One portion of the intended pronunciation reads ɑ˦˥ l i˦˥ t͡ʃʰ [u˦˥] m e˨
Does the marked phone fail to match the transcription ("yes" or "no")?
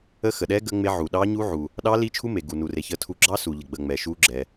no